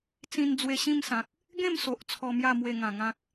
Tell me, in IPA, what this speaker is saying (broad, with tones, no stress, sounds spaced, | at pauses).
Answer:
t͡s ĩ˧ n d͡z w e˧ ɕ ĩ˥˧ m s ã˨ k̚ | ɡ ẽ˥˧ m s o˨ ʔ t͡sʰ ɔ˧ m j a˥˧ m w e˥˧ ŋ ã˨˩ ŋ ã˦ k̚